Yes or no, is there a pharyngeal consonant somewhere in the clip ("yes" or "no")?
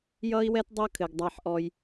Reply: yes